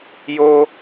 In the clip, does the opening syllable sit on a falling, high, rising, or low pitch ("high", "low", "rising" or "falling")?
high